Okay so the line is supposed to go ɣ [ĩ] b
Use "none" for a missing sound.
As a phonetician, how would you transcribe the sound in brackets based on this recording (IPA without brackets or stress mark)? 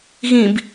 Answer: ĩ